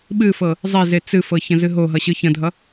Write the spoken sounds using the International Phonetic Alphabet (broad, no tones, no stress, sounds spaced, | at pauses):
ɓ ɨ f ɤ | zˤ e z e t͡s ɨ f ɤ ç ə̃ z ɨ ɦ o ɦ ʌ ɕ ɯ ç ə̃ dʱ ʌ